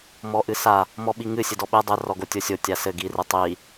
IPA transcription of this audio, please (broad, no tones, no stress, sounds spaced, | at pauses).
m ɔ ʔ ɨ s a | m ɔ ɓ i ŋ ɨ sʲ ɘ d ɔ ɓ e dˤ e r ɔ ɡ o tʲ o sʲ o tʲ a s ɘ ɡ i r ɨ tˤ i